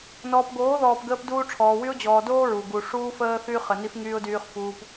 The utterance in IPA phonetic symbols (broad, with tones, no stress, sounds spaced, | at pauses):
n ɔː˨ p ɡ oː˨˦ ð ɔː˨ p ɡ əː˦ p d uː˦ ʈ͡ʂʰ ɔː˨ w y˦ ʊ̯ d͡ʑ ɔː˨ d oː˦ ɹ u˨ ɡ u˨ ʂ uː˦ f əː˦ θ yː˦ χ ə˨ n i˦ f ŋ yː˦ ʊ̯ d yː˦ χ f uː˦ p